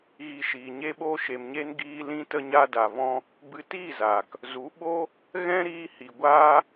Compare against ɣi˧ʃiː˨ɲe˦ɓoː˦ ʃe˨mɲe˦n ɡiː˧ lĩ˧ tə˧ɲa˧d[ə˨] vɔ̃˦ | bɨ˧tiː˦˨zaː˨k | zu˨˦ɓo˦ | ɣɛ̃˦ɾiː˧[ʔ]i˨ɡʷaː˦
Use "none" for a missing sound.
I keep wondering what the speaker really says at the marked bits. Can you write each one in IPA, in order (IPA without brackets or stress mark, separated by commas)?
a˨, h